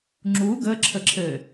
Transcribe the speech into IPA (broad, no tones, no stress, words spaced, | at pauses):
ŋ͡ǁu ɡə ǁʰəǁʰɘ